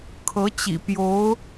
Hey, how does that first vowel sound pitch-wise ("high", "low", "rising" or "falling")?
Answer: rising